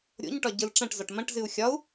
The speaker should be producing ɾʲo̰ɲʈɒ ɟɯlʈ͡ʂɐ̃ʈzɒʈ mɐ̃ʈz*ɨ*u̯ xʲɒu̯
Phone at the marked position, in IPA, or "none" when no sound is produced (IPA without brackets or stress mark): ɨ